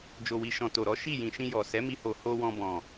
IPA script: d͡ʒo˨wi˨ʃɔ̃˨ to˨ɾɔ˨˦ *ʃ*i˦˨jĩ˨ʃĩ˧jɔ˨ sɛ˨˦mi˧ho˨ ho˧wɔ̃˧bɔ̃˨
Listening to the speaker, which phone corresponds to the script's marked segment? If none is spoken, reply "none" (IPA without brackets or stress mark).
ʃ